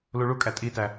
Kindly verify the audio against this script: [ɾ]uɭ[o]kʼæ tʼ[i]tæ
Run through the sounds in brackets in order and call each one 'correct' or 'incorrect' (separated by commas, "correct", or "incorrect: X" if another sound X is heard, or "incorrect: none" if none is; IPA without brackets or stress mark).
incorrect: l, incorrect: u, correct